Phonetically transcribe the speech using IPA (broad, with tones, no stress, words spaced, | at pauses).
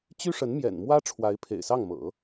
t͡ɕy˥ʂə˧˥nmjɛ̰˨˩nmwä˥ ʈ͡ʂʰwa˧˥ɪ̯pʰḛ˨˩ɪ̯sɑ˥˩ŋmɤ̰˨˩˦